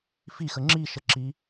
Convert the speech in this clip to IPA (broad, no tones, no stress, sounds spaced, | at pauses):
f i x ə ŋ͡ǁ i ʃ ə ǁ i